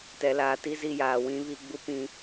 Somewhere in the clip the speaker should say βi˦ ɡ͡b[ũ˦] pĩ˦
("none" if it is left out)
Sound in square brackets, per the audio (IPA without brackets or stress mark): u˦